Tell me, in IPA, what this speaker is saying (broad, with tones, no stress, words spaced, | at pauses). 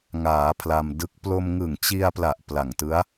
ŋaː˩˦ pʰla˧mdɯ˦˥k̚ plo˧mŋɯ˨˩ŋt͡ɕi˧a̯pla˨˩ʔ pla˨˩ŋtɯ˦˥a̯